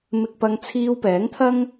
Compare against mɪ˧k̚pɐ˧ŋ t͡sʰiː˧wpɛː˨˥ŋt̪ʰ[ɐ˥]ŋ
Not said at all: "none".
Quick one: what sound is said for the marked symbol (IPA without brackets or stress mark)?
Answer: ɐ˥